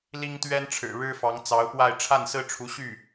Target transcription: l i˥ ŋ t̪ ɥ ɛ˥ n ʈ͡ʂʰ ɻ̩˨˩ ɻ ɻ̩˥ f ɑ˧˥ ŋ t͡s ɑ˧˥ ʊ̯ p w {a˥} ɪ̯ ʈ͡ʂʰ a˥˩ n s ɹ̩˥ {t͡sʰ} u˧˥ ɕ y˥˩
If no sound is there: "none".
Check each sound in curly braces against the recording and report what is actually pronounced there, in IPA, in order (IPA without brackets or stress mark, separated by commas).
a˥˧, ʈ͡ʂʰ